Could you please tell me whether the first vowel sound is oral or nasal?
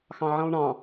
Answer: nasal